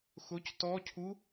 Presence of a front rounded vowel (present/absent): absent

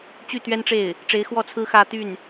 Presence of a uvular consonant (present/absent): absent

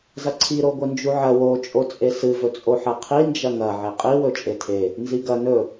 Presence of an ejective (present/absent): present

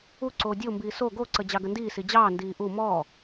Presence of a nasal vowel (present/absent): absent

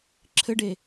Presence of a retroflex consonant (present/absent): present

